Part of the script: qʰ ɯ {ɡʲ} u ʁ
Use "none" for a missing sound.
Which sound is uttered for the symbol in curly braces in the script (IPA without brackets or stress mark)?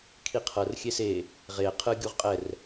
ɡʲ